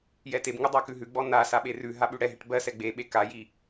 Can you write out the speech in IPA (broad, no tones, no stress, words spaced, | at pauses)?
jɛtebŋu dˤakʉɦʉɡ͡bɔ na saɓerʉɦa ɓʉɽɛɦɛʈ bɜsɛ ɡ͡beɓe kaji